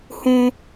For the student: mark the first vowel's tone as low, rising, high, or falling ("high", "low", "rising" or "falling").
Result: high